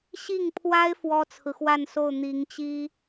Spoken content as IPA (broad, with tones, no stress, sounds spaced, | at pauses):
ɕ i˥˩ ŋ pʰ w a˥ ɪ̯ f w ɔ˥ t͡sʰ ɹ̩˨ x w a˥˧ n s o˥˩ ʊ̯ n̪ i˧˥ ŋ t͡ɕ i˥